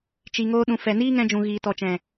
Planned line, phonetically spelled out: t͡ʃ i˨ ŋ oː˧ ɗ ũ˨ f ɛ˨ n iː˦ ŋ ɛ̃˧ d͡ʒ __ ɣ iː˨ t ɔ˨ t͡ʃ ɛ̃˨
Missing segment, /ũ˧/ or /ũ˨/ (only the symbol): ũ˨